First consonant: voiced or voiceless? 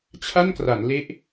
voiceless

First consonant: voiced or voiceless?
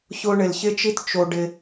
voiceless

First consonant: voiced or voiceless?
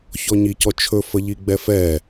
voiceless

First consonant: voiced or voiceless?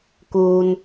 voiceless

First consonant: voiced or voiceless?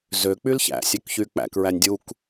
voiced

